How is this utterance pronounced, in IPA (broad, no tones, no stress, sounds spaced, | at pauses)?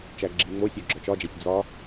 t͡ʃ æ ɡ͡ǁ i ŋ͡m o sʲ o ɡ͡ǁ ɒ t͡ʃ ɒ d͡ʒ æ sʲ d͡z ɒ